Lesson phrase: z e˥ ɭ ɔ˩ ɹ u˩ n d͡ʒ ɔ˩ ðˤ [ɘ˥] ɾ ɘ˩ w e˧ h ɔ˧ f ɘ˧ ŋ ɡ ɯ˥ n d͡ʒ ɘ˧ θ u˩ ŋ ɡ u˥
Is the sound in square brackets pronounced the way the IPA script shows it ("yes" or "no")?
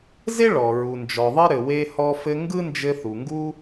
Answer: yes